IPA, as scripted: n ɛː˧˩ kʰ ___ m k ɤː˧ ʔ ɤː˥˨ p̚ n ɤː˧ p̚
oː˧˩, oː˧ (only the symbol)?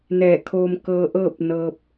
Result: oː˧